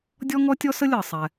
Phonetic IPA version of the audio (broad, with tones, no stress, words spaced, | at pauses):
dʲɔ˥ŋɔ˥tʲɔ˥s ə˥lʲɤ˩sˤɛ˩